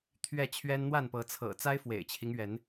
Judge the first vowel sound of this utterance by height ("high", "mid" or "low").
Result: mid